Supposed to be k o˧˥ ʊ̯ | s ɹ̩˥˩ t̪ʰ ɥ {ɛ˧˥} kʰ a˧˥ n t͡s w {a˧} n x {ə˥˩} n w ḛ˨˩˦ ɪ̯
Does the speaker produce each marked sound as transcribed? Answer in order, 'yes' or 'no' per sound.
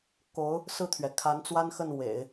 no, no, yes

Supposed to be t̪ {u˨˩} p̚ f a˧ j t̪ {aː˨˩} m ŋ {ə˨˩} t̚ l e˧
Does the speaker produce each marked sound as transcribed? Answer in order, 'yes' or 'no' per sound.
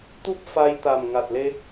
no, no, no

